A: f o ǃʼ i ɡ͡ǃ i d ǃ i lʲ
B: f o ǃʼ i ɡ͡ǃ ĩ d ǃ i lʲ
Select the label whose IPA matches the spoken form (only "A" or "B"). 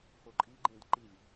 B